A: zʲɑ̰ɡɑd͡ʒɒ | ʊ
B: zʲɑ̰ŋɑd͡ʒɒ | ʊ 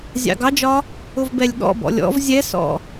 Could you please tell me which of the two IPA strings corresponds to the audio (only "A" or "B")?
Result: A